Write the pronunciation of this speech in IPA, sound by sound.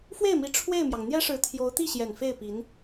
fwe˥˩ɪ̯mi˧˥ ʈ͡ʂʰwe˥˩ɪ̯mjɑ˩ŋ n̪jɛ˥ʂɻ̩˧˥ t̪ʰjo˧˥ʊ̯t̪i˥˩ɕjɛ˨˩n fe˥˩ɪ̯ pi˧˥n

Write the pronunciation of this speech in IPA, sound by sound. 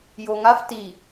joŋaf ti

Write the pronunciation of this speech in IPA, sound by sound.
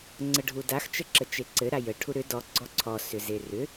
ŋ͡ǀəɖʱudax t͡ʃəǁət͡ʃeǀɘ ɾajə ʈʰuɾʏ dɔ ɡ͡ǀɔǀʰɔ sʏzerʏ

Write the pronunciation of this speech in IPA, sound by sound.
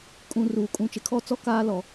kʼũ˨ruː˨ kʼũ˨ t͡ʃɪ˨kʰɔ˦˨ t͡sɔ˦ kaː˦lɔ˨

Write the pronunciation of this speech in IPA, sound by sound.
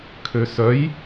kʰøsœj

